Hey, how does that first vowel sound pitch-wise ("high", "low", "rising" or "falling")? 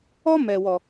high